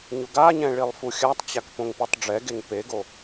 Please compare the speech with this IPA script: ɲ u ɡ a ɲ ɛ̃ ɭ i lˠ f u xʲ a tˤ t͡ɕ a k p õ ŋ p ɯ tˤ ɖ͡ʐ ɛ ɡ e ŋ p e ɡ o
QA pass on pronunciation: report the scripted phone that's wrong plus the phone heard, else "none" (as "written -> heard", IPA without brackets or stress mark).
none